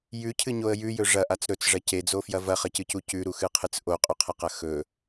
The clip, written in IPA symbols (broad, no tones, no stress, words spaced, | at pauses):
jʉcʰɨɲoə̯ jʉjɵ ʐɐʔat͡s ɾɵt͡sʐɐ ced͡zofjɐ vɐχɐcɨcu cʉɾuxɨqʰɨt͡s ʔoqʼʉqʰɐqɐ xɵ